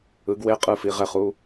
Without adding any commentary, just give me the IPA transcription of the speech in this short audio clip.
ɯ˨˥ ɡ w e˧˥˧ qʼ ɯ˧˥˧ f i˨˥ ʁ ɛ˧˥˧ χ u˧˥˧

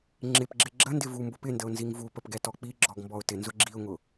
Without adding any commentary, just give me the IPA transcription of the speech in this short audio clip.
ŋ͡ǁ ɪ p ɡ͡ǁ ɪ ɡ͡ǁ ə n d ɪ v u m b ʊ p ɪ n d ə ʊ̯ n z i ŋ v u p ə p ɡ ɛ t ɔ k͡p i ɡ͡ǁ ɔ ɡ m b ɔ ʊ̯ t ɪ n z ʊ ɡ͡ǁ i ʊ̯ ŋ ʊ

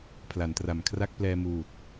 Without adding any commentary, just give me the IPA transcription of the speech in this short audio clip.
pʰ l a˩˦ n t r a˨˩ m kʰ r a˥˩ k̚ p l ɛː˧ m uː˨˩ t̚

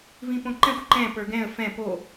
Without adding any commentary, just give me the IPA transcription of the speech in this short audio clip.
v ĩ p õ ǃ ɛ̃ xʷ ǃ ɛ̃ p ə˞ ɡ ɛ̃ ə̯ f ɛ̃ p o

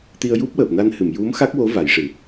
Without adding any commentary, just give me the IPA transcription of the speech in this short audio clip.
t̪ i˧ ə̯ j u˦˥ p̚ w əː˨˩ p̚ n a˧ n h ɨ˨˩˨ m j u˧˥ m x a˦˥ k̚ w o˧˥ v a˨˩˦ j ʂ ɨ˨˩

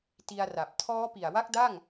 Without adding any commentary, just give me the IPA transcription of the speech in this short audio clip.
t i˧ a̯ r a˨˩ p̚ tʰ ɔː˦˥ p i˨˩ a̯ w a˥˩ k̚ d a˥˩ ŋ

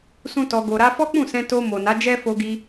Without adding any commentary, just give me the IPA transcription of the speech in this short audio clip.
s ũ˦ t ɔ˧ ɡ o˧ ɾ a˧ f ɔ˦ k͡p ũ˦˨ s ɛ̃˧ t o˧ m o˨ n a˨˦ d͡ʒ ɛ˦ f o˧ ɡ i˧

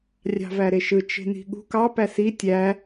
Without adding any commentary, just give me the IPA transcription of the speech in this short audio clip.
rʲ ɑ̤ v æ ɾ e ʃ ɯ t͡ʃ e̤ n i̤ ɠ ṳ k ɑ p æ s i tʲ æ

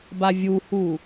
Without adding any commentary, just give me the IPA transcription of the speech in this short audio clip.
b a vʲ u h u

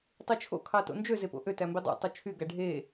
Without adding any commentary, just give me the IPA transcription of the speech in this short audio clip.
tˤ i t͡ʃʰ o̰ kʰ ɑ t o̰ n d͡ʒ ø z e p o̰ ʔ ø t æ m b i dˤ o̰ tˤ u t͡ʃʰ y ɡ æ ɖʱ e

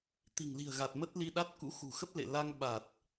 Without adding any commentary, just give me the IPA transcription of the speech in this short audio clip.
t̪ i̤˨˩ ŋ l i̤˨˩ ə̯ ɣ a˨˩ t̚ m ə˦˥ t̚ l i˧ ɗ a˦˥ t̚ k ṵ˧˥ x ṳ˨˩ x ə˦˥ p̚ l ḛ˧˨ l a˧ ŋ ɓ a˨˩ t̚

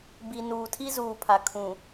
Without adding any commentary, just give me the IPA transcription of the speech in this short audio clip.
b i˨ n uː˨ tʰ i˦ z uː˨ pʰ a˨ kʰ ũ˨

